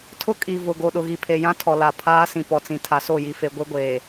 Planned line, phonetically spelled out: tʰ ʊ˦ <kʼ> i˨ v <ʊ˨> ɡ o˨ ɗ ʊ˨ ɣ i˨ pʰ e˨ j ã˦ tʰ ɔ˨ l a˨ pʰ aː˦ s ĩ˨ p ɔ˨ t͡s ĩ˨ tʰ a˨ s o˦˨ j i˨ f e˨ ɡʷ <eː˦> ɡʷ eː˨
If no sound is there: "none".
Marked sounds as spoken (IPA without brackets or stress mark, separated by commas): kʼ, ʊ˨, e˦